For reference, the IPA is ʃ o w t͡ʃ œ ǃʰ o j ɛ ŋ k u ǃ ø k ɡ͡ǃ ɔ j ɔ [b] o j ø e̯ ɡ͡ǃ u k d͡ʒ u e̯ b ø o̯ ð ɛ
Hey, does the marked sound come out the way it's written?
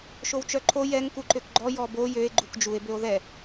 yes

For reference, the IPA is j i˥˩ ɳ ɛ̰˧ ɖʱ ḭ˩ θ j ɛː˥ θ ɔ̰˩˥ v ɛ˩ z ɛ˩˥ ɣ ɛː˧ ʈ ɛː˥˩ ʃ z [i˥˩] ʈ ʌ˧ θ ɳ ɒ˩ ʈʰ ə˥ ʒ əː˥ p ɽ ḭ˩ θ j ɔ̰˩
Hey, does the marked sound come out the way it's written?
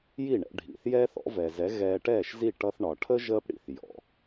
yes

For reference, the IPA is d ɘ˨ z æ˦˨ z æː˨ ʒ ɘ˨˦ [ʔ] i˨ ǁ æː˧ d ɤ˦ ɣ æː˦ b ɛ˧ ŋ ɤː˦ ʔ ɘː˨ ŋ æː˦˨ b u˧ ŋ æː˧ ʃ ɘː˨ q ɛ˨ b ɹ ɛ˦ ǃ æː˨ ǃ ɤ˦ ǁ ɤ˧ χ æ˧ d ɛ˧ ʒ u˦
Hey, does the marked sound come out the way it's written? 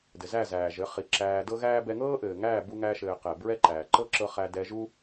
no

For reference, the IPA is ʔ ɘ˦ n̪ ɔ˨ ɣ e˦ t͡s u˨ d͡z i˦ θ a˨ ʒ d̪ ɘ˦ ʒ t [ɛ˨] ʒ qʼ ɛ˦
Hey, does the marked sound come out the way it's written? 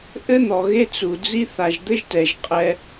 yes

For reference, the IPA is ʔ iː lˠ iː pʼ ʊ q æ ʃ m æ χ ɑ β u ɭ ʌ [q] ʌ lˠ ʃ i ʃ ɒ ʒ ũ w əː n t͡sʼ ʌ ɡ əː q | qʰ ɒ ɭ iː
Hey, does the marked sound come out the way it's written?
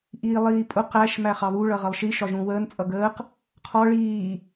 no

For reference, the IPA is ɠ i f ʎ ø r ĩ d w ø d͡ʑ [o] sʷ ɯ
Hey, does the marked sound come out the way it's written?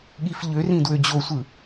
yes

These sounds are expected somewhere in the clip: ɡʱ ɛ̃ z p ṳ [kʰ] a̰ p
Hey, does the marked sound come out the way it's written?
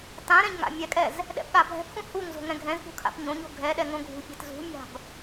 yes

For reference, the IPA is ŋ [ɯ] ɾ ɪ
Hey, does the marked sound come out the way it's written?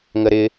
no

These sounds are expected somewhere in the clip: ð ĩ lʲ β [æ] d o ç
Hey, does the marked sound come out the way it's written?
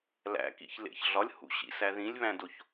no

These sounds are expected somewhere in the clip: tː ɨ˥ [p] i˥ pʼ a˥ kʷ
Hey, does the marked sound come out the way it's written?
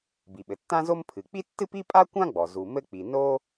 yes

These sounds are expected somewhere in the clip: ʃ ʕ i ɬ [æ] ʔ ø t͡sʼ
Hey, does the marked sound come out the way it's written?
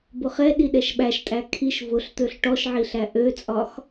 yes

